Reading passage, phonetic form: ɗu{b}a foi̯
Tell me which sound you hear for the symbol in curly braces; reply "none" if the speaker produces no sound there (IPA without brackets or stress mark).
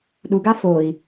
ɡ